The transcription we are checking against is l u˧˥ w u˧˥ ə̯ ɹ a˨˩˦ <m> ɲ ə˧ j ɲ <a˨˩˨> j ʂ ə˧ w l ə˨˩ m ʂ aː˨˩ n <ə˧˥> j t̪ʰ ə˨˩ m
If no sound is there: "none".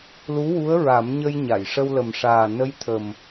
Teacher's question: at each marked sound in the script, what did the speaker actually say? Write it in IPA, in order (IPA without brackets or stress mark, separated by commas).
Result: m, a˨˩˨, ə˧˥